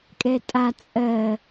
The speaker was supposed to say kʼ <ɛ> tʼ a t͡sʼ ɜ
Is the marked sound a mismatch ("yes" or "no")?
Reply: no